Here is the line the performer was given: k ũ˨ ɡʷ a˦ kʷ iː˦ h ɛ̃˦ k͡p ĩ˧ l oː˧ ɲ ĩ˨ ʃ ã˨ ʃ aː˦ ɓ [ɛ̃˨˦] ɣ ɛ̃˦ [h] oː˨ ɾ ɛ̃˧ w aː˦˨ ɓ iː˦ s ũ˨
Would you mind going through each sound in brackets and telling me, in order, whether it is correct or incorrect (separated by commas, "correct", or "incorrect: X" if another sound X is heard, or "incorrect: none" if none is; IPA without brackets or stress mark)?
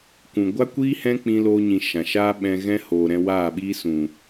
incorrect: ɛ̃˧, correct